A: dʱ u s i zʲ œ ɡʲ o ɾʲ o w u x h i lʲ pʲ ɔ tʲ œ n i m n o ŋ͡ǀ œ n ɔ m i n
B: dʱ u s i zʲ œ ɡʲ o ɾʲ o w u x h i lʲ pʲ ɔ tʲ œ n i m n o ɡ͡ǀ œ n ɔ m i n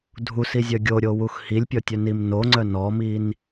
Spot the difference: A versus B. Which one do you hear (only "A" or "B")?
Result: A